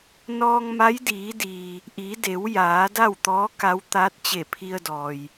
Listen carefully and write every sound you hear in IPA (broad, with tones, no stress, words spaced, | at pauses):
nɔː˧ŋma˧˥jdiː˩˧diː˩ | ʔi˩˧de˩˧w jaː˩˧da˥˨wt̪ɔː˧˥ ka˧˥w t̪aː˧˥t̚t͡ɕe˧˩pʰi˧ə̯ dɔː˩j